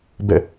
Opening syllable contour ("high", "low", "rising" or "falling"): falling